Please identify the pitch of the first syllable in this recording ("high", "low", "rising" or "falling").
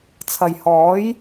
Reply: low